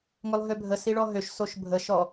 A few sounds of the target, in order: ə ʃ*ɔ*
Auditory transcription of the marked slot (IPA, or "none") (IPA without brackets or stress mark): ɔ